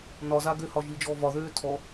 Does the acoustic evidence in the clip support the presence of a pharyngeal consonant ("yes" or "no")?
no